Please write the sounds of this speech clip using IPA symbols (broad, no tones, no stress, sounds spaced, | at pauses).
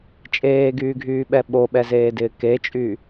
t͡ʃʼ eː ɡ yː ɡʱ yː ɓ ɛ ɓ o ɓ ɛ z eː d ɪː k e t͡ʃʼ y